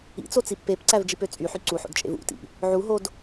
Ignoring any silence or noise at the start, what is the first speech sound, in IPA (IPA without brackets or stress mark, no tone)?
ḭ